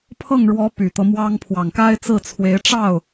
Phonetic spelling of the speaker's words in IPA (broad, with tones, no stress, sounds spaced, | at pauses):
pʰ ɤ˥˩ ŋ ɻ w ɔ˧˥ p y˨˩ t̪ ɤ˦ m w ɑ˥ ŋ pʰ w ɑ˨˩ ŋ k a˥ ɪ̯ t͡s ɹ̩˥˩ t͡sʰ w e˧˥ ɪ̯ ʈ͡ʂ ɑ˥˩ ʊ̯